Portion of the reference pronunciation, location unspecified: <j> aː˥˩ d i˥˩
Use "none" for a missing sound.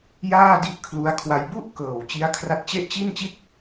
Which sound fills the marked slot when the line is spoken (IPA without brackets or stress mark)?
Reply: j